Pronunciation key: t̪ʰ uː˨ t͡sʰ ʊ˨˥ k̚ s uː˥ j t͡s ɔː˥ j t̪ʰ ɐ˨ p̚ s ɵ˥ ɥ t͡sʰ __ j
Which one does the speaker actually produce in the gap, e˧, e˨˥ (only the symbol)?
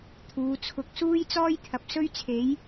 e˨˥